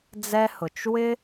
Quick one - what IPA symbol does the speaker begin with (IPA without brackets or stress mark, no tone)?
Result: d͡z